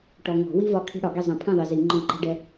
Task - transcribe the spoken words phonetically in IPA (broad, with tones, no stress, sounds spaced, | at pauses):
ʈ ɔ˨ ŋ ɔ̤˨˩˦ w i˥ v ɒ˥˨ kʰ i̤˥ ɽ ɒ˨˩˦ ɡ i˥˨ zˤ ɛ̃˨˩˦ pʰ ɛ̃˥˨ ðˤ i˨ z i˨˩˦ ŋ͡ǃ ɔ̃˥˨ ǃ ɛ̤˥ ɖ ɛ˥